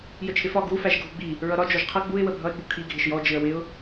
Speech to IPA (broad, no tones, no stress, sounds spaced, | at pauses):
j ə t͡ʃʰ ɪ f ɒ ɡ u f æ ʒ ɡʱ u ɡ͡b i | ɹ ʌ ɾ ɒ d͡ʒ ɔ ʒ qʰ ʌ ɡ͡b u ɪ̯ w ə bʱ ʌ ɪ̯ ɡ͡b u kʰ i ɡʱ ɪ ʃ j ɔ d͡ʒ ɪ ə̯ w ɪ ʊ̯